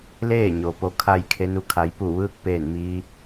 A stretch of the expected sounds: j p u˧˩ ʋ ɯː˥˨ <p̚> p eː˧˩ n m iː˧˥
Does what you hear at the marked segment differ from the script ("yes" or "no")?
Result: yes